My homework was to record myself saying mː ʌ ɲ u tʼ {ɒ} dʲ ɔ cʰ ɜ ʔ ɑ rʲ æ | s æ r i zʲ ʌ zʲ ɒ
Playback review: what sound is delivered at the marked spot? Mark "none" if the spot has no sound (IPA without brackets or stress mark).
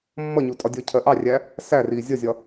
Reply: ɒ